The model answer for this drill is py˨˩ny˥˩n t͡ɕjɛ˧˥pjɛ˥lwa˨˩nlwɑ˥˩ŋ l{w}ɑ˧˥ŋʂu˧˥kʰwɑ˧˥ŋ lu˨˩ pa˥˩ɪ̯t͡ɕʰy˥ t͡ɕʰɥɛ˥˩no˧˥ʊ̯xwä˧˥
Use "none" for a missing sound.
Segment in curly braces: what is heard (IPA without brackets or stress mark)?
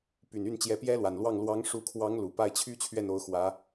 w